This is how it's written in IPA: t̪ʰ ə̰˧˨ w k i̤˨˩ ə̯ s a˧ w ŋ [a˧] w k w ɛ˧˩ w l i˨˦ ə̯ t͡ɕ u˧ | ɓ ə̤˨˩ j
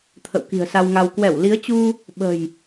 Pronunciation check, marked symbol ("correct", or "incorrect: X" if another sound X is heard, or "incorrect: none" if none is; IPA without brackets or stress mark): correct